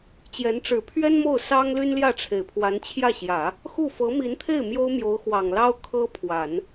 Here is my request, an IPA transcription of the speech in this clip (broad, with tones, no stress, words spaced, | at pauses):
t͡ɕjɛ˧˥nʈ͡ʂɻ̩˨˩ pʰɥɛ˥n mo˥˩ʊ̯sɑ˥ŋly˥nljä˥˩ ʈ͡ʂʰe˨˩ɪ̯pʰwa˧˥nt͡ɕʰjä˥˩ɕjä˨˩˦ | xu˥˩ fɤ˧˥mi˧˥nt̪ʰe˥˩ɪ̯ mjo˥ʊ̯mjo˧˥ʊ̯xwɑ˨˩ŋlɑ˥ʊ̯ kʰɤ˥pʰwa˨˩˦n